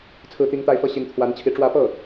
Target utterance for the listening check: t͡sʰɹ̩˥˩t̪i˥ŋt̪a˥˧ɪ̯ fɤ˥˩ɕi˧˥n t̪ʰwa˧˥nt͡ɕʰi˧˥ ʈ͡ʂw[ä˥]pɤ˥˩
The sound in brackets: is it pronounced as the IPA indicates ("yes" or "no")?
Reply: no